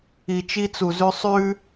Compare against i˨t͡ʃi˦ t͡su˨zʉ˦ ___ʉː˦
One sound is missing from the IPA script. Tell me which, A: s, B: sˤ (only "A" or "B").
B